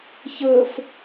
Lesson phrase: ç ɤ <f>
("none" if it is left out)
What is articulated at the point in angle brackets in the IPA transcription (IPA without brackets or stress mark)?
f